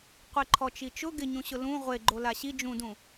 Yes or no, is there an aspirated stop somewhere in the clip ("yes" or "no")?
yes